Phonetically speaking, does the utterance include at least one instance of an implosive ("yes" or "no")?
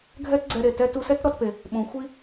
yes